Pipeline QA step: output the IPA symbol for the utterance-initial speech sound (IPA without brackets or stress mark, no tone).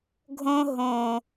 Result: ɡʱ